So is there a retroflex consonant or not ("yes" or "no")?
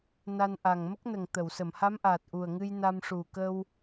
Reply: yes